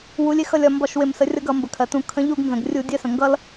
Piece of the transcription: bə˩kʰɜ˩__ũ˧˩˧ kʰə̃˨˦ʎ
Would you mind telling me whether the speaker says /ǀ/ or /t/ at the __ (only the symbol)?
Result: t